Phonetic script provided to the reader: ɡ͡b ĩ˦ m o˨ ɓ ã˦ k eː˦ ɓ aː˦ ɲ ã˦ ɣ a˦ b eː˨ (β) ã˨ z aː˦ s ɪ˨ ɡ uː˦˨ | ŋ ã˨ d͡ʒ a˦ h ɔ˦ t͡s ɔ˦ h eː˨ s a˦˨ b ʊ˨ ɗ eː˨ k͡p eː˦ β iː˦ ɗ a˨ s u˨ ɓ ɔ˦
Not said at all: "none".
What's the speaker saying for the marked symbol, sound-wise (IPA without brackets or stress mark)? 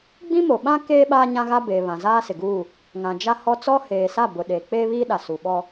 β